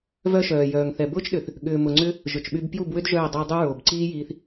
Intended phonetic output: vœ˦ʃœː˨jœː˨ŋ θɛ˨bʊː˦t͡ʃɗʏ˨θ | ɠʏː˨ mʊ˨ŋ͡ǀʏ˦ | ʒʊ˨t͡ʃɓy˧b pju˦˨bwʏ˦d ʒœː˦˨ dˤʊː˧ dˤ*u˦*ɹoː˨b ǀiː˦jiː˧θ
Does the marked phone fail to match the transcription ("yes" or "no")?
no